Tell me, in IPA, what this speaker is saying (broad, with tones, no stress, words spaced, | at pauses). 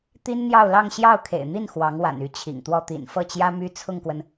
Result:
t̪i˥nn̪jɑ˥˧ʊ̯lɑ˥˧ŋ ɕjɑ˥˩ʊ̯kʰḛ˨˩ɪ̯n̪i˥˩n xwɑ˧˥ŋwa̰˨˩n y˥˩t͡ɕʰḭ˨˩ŋt̪wɔ˥˩ t̪ḭ˨˩nfɤ˥˩t͡ɕjä˥ my˥ t͡sʰʊ˥˩ŋkwə˩n